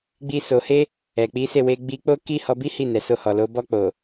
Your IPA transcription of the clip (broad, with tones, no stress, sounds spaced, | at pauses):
ɡ͡b i˧ s o˨ h e˧ | ɛ˨ k͡p i˨˦ s e˦˨ w e˧ ɡ͡b i˧ k͡p o˦ k i˦ h ɔ˧ b i˦ h i˦˨ n ɛ˨ s o˧ h ɔ˨ l o˨˦ b ɔ˧ k͡p o˨